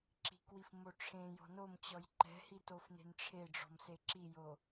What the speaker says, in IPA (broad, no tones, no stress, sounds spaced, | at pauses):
ǁ i̤ k w i f m o ʈ͡ʂʰ ẽ j ɔ̤ n o m t͡ɕ ɔ j ǃ ɛ̤ h i t o f n e̤ n ʈ͡ʂʰ e ɖ͡ʐ ɔ̤ m s e ǁ i j o